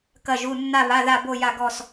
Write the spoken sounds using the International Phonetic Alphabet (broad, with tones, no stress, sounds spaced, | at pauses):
k ɐ˥˧ ʒ u˧˥˧ nː a˥˧ β a˧˥˧ ð a˥˧ b o˥˧ j a˥˧ ɡ ɔ˥˧ s